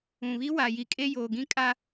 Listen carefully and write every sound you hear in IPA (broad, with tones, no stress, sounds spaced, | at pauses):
ũ˨ β i˦ w a˨ j i˨ kʼ e˦ j oː˨ ɡ ĩ˦ kʼ a˦